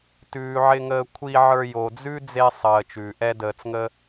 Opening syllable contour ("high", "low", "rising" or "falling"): low